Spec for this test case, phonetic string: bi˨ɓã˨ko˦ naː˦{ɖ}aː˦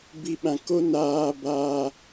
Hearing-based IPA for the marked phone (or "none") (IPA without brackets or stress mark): b